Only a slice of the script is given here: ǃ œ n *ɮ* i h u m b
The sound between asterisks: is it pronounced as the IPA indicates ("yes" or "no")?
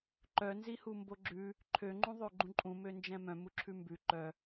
no